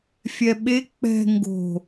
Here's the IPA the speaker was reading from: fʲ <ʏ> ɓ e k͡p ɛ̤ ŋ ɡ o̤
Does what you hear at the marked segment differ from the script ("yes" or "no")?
yes